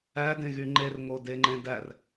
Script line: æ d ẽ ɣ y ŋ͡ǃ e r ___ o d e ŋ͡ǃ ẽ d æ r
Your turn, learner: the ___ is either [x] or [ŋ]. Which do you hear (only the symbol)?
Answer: ŋ